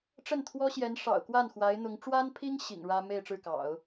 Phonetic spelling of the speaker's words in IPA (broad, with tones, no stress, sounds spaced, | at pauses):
ʈ͡ʂ ə˥˩ n t̪ʰ w ɔ˥ ɕ j ɛ˧˥ n ʂ ɑ̰˨˩ ʊ̯ k w a˥˩ n x w a˧˥ ɪ̯ n̪ ʊ˧˥ ŋ ʈ͡ʂ w a˥ n pʰ i˥ ŋ ɕ ḭ˨˩ ŋ ɻ ä˥ m e˥˧ ɪ̯ ʈ͡ʂ ɻ̩˥˩ k ɑ̰˨˩˦ ʊ̯